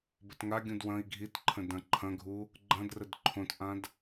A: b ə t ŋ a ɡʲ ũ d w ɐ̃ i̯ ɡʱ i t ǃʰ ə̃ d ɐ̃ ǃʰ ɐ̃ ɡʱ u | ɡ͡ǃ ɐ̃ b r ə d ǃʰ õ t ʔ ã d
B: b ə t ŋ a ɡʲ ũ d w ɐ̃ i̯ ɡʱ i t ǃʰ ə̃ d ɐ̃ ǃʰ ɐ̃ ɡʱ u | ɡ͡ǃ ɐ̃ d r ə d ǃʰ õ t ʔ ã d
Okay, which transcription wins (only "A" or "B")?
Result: B